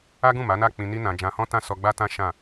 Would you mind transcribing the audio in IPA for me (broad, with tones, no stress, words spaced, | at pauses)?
a˦ɡũ˦˨ma˨˦na˦˨ k͡pĩ˧ni˦nã˧ d͡ʒã˧hɔ̃˦tã˦˨ sɔ˧ɡ͡ba˦tã˦ʃã˦˨